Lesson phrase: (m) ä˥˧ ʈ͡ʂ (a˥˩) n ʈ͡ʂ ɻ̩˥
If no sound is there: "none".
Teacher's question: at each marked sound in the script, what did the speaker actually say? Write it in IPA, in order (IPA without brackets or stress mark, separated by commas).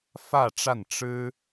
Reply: f, a˥˩